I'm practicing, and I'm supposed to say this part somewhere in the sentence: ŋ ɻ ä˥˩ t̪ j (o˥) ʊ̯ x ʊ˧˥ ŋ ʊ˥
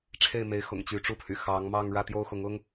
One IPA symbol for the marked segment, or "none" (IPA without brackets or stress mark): o˥